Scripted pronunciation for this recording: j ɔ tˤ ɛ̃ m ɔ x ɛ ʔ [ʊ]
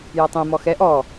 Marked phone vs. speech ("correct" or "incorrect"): incorrect